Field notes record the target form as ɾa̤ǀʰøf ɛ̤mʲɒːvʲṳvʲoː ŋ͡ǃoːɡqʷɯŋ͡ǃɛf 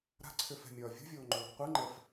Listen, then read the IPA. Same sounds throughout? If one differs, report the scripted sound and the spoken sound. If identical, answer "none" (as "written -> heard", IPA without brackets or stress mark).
none